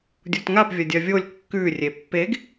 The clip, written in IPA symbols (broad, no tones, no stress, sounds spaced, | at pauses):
dʲ u t ŋ a p vʲ ɐ dʲ ɐ vʲ o lʲ kː ʉ rʲ e pː e ɡ